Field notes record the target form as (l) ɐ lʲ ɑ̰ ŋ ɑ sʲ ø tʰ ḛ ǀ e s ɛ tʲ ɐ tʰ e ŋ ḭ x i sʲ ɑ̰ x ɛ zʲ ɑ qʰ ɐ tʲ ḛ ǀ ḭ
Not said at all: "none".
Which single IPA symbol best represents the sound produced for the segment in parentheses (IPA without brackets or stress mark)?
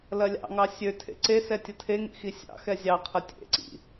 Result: l